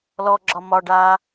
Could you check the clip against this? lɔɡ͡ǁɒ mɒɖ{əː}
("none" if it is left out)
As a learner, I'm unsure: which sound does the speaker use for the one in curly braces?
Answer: aː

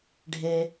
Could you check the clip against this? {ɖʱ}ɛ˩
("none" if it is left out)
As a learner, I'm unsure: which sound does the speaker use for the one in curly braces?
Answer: ɖʱ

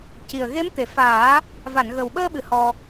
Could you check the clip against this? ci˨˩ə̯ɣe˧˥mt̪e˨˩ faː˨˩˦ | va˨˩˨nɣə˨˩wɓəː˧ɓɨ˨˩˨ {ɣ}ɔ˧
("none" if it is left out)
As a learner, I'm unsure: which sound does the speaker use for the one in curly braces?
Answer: h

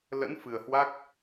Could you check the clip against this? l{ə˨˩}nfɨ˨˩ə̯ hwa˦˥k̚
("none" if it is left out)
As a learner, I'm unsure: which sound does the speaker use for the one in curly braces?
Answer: ə̰˧˥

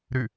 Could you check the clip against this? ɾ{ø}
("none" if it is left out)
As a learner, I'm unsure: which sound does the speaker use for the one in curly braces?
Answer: ʉ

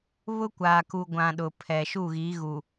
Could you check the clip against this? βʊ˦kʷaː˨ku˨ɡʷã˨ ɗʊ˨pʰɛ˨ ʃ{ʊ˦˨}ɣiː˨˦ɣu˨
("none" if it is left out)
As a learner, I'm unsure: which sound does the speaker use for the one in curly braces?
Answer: u˦˨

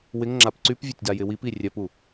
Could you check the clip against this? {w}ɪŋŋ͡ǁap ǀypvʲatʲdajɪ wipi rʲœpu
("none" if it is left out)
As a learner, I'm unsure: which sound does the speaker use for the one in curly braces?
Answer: w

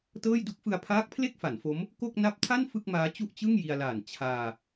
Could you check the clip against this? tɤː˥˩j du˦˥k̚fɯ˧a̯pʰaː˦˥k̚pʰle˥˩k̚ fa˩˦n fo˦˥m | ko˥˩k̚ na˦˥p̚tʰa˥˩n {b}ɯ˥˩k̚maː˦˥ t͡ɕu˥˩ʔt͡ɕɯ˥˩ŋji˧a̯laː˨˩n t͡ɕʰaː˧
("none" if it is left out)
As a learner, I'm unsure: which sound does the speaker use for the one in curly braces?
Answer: f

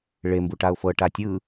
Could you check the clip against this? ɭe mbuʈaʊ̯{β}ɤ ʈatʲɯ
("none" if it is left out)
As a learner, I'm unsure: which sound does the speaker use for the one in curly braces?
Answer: f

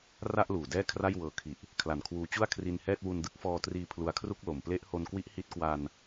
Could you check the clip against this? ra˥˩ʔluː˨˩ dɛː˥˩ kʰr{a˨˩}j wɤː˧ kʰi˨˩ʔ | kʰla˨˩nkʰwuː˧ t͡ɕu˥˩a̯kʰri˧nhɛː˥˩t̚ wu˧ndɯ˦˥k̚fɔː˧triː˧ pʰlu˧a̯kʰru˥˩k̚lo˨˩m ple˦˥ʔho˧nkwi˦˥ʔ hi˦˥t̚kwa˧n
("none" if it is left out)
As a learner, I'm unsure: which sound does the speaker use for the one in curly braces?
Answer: a˥˩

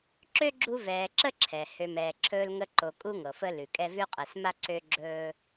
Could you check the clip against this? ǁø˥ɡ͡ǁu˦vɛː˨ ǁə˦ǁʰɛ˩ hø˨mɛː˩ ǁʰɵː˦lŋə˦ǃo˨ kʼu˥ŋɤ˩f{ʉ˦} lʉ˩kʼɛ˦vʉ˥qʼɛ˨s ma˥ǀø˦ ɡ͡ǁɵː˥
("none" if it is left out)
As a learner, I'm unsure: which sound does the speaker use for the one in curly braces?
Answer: ə˦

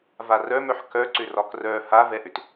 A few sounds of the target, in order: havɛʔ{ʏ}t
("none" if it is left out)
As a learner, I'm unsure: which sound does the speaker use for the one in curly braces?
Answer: ʏ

